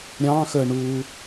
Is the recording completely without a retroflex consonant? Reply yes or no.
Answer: no